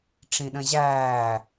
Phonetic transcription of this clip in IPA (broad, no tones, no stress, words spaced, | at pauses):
ʈ͡ʂĩɗə̃ʑæː